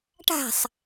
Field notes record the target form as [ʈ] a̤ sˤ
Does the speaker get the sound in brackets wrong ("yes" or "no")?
no